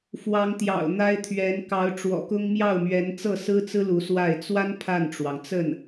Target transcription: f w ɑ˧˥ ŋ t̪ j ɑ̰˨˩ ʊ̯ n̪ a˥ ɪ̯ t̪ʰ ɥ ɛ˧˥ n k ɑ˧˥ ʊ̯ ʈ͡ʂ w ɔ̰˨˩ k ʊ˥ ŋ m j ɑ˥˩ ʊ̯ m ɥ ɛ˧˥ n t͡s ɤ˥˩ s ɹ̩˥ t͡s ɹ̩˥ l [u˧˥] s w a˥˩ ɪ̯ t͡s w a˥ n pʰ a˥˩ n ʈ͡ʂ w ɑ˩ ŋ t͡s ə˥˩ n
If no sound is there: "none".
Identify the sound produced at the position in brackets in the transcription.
u˧˥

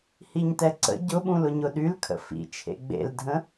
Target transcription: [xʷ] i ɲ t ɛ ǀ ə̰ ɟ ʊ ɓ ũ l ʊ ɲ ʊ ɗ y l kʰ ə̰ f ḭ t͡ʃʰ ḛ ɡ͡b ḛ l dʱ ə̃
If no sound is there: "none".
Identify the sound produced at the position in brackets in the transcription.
h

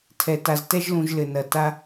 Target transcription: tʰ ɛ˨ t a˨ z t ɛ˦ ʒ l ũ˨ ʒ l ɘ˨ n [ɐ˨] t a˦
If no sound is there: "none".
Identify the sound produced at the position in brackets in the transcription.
ɐ˨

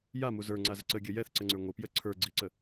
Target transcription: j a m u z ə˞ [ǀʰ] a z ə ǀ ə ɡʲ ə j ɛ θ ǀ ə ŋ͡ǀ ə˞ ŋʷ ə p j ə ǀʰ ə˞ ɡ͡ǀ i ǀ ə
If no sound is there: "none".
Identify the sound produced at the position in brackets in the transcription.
ŋ͡ǀ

